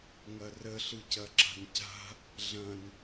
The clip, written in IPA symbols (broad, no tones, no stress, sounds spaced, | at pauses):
ŋ ɐ r ə ɬ ɯ c ɐ ǁ a̤ n c a̤ | ɮ ɐ̃ n